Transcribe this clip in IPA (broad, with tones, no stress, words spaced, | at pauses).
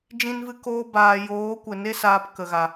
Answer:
d͡ʒĩ˧nvɨ˧koː˧ baː˨joː˨˦kʷɛ˨ ne˧saː˨p kə˨ɣa˨